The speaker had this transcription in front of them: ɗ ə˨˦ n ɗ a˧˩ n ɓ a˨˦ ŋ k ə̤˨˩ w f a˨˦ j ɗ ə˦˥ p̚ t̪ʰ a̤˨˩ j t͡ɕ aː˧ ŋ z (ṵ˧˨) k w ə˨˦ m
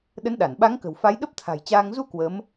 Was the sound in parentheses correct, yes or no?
no